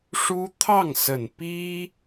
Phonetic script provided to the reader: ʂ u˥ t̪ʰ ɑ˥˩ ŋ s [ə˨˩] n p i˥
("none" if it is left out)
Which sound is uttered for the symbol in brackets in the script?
ə˨˩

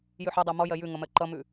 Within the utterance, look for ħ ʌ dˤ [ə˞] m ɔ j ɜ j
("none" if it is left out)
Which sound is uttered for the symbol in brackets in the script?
ɜ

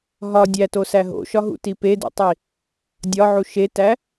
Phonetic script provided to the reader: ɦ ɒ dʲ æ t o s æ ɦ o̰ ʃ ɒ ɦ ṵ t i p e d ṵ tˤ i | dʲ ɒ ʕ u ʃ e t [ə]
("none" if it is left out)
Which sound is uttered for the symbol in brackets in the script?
æ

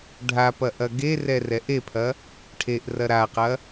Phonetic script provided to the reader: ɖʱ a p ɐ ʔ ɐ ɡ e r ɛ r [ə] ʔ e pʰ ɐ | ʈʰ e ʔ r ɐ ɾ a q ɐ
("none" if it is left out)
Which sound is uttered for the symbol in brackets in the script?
ɛ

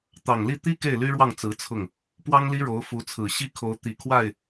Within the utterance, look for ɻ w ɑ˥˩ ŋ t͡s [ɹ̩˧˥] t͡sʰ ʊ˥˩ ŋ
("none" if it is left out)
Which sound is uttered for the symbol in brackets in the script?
ɹ̩˧˥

